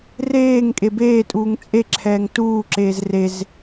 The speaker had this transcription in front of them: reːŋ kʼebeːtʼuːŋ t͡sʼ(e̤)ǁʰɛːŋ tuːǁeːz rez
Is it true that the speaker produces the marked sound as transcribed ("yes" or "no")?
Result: no